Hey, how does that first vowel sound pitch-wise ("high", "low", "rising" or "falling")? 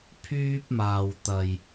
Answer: high